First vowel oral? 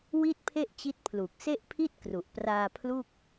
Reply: yes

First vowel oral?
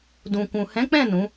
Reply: no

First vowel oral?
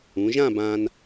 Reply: no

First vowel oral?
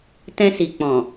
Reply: no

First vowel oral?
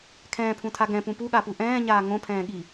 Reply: no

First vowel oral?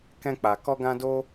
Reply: no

